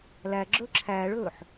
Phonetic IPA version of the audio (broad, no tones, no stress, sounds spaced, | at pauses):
l æ ɡ͡ǁ ɵ ǁʰ æ ɭ ɵ ħ